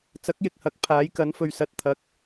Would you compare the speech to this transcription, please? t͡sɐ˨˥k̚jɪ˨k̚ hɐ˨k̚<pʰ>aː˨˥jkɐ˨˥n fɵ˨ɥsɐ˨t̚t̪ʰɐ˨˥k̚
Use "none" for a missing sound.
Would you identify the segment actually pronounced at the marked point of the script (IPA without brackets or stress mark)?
pʰ